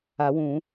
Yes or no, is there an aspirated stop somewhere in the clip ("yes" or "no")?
no